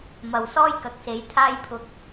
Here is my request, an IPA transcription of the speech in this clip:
mɐ˨wsɔː˥jkɐ˨˥k̚se˨˥j t̪ʰaː˧jpʰʊ˨k̚

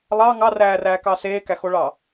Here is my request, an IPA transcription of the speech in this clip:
lˠɑ ŋɑræːræːkɑ seːkæxoɭɑ

